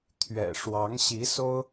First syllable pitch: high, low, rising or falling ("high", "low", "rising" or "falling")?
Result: low